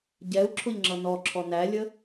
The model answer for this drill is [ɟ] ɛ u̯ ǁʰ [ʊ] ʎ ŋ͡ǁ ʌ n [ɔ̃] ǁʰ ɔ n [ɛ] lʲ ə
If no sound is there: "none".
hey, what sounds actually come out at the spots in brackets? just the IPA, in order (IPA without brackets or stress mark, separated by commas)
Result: ɟ, ʊ, ɔ, æ